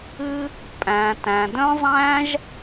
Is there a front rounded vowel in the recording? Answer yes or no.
yes